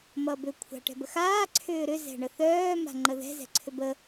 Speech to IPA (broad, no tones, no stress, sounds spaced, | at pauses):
m ʌ b ʏ kʷʰ a̤ ʈ ɛ̤ b ə x aː ǀʰ ʏː ɾ ʏ z ɛ̤ ɳ ə θ œː m a̤ ŋ͡ǃ ə ð ɛ̤ z ɛ̤ ǀʰ ʏ b ə